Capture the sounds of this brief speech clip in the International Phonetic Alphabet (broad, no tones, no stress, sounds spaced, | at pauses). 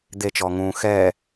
d̪ e t͡ʃ ɔː ŋ ũː x ɛː